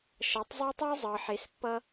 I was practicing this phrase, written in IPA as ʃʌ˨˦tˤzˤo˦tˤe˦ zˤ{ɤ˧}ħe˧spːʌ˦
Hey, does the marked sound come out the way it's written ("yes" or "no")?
yes